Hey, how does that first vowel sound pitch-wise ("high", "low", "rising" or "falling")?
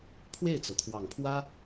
falling